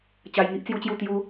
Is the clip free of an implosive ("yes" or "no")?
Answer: yes